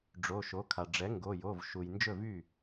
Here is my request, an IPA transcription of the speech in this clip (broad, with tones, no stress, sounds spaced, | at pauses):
ɖ͡ʐ o˩˧˩ ʃ o˩˥ kʰ a˩ ɖ͡ʐ ɛ˩˥ ŋ ɡ o˩˧˩ j o˩˧˩ v ʃ u˩ j n d͡ʒ ɵ˥˩ v y˥˩